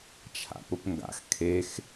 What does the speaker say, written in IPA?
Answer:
t͡ʃʰa̰pʊpŋɡa̰x kʰex

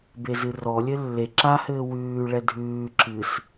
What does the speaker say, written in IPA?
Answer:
bezɨrɔ lʲɘlːe ǁahɘː wʉː ɭɛdʱʉː ǁɨs

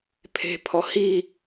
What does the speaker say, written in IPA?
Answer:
pʰe̤pʰɔ hi

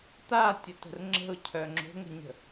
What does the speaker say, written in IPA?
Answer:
t̪atʲətə̤r ŋ͡ǁə̤ʊ̯cʰœ ŋ͡ǁo̤ŋə̤ɲə̤

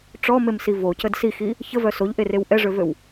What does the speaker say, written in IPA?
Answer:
ʈ͡ʂɔmemsi vocəd sixi | çəvœ soʎʔerew ʔɛʐøvøw

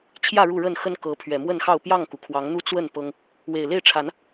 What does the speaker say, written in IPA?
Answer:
t͡ɕʰjä˥˨ɻu˥˨ ɻə˥˨nxə˦nkɤ˨˦ pʰɥɛ˨˩mwə˥˨nxɑ˥˨ʊ̯ pjɑ˥˨ŋku˩ kʰwɑ˨˦ŋn̪u˦ t͡swə˥˨n pɤ˦ŋ | we˨˩ɪ̯le˥˨ɪ̯ʈ͡ʂʰa˨˦n

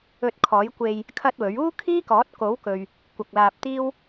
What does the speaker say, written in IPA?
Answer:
ɵ˧t̚ kʰɔː˨˥jkʷe˧j | kʰɐ˥t̚wɵ˨˥ɥ uː˥kʰiː˥kɔː˨˥t̚ ko˨˥wkɵ˨ɥ | kʷɐ˨k̚ laː˧p̚t̪iː˥w

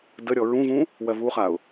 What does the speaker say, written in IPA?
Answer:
dəɾʲɔ ɹũvũ | wɜvuχaʊ̯

